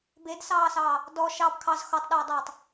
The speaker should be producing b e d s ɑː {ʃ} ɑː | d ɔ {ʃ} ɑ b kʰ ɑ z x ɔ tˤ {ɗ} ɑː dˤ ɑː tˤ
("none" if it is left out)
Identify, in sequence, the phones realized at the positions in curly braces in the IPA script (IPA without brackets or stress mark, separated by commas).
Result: s, ʃ, ɗ